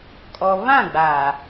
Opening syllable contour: low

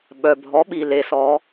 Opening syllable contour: low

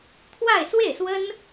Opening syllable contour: falling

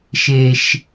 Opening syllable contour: low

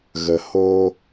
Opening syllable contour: low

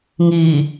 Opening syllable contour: low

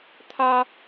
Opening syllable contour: high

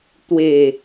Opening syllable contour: low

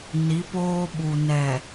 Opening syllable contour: rising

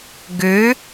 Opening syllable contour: rising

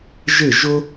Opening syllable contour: falling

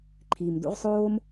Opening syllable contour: low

